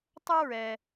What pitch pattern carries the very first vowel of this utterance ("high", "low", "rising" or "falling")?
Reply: high